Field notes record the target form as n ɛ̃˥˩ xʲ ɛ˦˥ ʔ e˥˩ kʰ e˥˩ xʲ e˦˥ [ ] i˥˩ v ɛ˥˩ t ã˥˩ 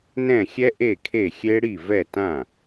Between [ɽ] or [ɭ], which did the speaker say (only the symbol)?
ɽ